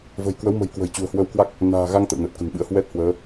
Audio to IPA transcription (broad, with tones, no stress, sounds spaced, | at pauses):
v ə̤˨˩ j k w ə˨˦ w m ə̤˨˩ j k w ə̤˨˩ j t͡ɕ ṳ˨˩ ə̯ h w ə˧ w k w a˦˥ k̚ | n a̤ː˨˩ ɣ a˧ ŋ t̪ ə̰˧˨ w n əː˨˩ t̚ k ə̤˨˩ n ɓ ɨ̰˧˥ ə̯ h w ɛ˦˥ t̚ h w əː˨˦